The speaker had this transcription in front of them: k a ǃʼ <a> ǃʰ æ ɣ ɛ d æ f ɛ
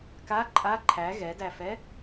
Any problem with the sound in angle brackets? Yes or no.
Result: no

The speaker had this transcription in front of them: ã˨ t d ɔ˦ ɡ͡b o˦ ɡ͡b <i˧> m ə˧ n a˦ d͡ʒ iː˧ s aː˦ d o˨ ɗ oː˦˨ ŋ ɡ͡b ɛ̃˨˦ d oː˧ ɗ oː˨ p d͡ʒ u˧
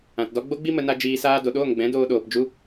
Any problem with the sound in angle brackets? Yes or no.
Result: yes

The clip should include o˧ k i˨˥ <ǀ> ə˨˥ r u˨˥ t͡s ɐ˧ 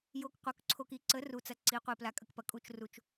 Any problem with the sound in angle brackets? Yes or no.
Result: no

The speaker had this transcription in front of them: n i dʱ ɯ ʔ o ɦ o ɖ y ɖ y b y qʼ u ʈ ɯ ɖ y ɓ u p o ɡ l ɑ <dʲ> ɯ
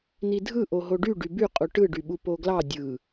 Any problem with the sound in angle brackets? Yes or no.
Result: no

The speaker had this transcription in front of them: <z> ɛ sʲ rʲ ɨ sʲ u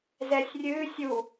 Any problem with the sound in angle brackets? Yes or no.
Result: no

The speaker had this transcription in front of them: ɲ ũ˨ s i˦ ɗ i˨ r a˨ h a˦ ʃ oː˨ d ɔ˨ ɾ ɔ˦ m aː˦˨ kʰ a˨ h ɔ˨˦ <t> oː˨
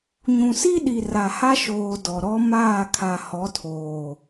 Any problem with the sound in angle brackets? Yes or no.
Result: yes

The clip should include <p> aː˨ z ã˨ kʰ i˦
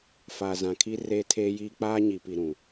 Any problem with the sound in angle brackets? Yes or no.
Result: yes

